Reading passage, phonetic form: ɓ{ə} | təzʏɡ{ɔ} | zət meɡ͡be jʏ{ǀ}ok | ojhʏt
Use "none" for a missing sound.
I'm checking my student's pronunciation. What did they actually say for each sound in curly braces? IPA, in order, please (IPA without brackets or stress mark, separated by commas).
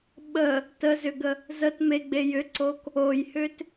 ə, ə, ǀ